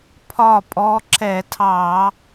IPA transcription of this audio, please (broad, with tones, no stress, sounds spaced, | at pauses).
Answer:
pʰ ɒ˥˨ pʼ ɔ˧˥ ǁ ɛ˧˩˧ tʰ ɑ˧˩˧